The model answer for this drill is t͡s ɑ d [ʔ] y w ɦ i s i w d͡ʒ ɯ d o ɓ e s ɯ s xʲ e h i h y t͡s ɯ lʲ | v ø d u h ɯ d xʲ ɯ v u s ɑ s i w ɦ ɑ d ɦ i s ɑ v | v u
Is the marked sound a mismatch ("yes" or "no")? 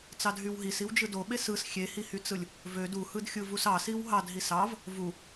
yes